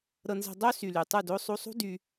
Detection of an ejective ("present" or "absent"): absent